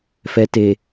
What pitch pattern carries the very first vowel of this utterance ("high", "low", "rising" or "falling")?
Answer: low